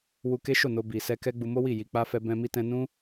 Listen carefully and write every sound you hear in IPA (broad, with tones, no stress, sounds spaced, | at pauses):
w u˧ k e˦ ʃ o˦˨ n o˧ b i˨ s ɛ˧ k ɛ˦ ɡ͡b u˧ m o˦ w i˦˨ j i˨ k͡p a˧ f ɛ˧ b ɛ̃˧ m i˧ t ɛ̃˧ n ũ˦